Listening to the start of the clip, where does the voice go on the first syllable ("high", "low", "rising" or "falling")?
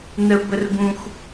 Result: high